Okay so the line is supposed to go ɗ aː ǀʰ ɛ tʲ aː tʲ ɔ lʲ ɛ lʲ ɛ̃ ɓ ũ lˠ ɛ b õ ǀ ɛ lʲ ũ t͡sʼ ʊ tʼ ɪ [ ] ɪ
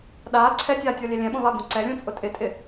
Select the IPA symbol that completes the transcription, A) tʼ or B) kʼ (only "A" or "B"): A